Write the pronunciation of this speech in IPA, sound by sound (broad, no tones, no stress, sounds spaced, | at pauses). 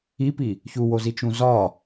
i p i | ç u w o z i t͡ʃ ũ z ɒ